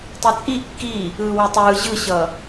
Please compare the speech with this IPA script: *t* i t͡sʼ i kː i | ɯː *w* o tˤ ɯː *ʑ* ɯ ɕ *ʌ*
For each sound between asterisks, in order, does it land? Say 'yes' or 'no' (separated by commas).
no, yes, yes, yes